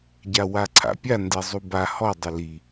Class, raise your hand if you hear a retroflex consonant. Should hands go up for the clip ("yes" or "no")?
no